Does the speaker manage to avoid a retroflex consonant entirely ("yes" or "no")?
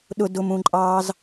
yes